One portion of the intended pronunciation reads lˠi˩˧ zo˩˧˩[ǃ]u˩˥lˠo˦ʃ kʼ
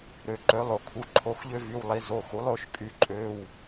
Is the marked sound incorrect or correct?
incorrect